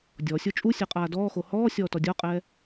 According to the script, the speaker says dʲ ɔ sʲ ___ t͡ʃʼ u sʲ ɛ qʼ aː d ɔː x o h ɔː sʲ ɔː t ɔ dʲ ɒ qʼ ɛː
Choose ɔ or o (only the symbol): o